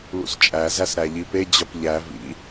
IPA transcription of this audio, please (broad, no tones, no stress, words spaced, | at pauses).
lṵst͡ʃʼæ zæsɾæʎipe d͡ʑɒpʎæ vḭ